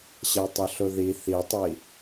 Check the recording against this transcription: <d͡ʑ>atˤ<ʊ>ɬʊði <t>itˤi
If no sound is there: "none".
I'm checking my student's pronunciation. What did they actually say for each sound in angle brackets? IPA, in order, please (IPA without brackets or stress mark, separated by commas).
ɕ, ʊ, θ